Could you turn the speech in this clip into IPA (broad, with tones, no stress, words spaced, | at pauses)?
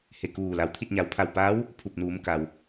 he˧˩kuː˧˩ la˩wt̪ʰi˥˨t̚ ɲa˩wpʰa˧˩w paː˧˥w | pʰu˧˩p̚nuː˩˧mka˩w